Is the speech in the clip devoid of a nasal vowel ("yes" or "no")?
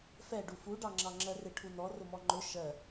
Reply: yes